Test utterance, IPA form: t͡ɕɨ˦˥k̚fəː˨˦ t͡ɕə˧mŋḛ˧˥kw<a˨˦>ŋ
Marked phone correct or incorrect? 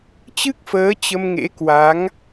correct